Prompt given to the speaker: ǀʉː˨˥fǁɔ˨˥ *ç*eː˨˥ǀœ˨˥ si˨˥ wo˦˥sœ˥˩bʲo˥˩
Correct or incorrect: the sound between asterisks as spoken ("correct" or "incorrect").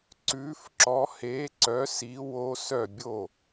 incorrect